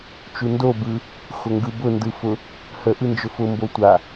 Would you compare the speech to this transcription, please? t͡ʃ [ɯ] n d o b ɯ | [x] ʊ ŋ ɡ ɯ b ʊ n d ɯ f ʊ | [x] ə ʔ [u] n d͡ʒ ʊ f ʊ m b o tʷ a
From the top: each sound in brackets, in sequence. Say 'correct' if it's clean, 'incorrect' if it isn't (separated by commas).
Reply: incorrect, correct, incorrect, incorrect